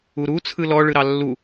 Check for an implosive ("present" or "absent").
absent